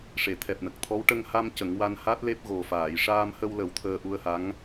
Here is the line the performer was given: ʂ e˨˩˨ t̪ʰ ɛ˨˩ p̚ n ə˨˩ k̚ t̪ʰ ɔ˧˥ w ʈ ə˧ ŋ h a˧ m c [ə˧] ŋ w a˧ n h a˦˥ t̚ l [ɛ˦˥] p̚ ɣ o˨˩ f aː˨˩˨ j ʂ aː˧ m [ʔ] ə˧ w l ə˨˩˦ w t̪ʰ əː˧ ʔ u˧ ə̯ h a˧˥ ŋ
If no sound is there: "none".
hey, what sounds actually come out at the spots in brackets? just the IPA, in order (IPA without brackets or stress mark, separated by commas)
ə˨˩˦, e˦˥, h